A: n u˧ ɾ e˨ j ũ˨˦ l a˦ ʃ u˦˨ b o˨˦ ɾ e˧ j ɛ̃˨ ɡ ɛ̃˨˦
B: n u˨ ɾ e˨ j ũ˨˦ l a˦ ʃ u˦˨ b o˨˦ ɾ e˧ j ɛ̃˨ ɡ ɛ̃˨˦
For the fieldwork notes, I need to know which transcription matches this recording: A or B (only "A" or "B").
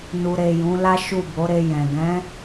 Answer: B